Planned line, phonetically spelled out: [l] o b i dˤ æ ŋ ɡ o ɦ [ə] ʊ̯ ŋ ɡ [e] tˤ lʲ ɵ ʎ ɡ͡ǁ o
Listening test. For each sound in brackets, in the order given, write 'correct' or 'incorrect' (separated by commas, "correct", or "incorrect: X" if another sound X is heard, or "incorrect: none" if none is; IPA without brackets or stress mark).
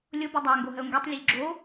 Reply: incorrect: lʲ, correct, correct